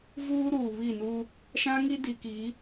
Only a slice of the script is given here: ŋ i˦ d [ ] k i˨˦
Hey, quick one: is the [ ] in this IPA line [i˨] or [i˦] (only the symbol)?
i˨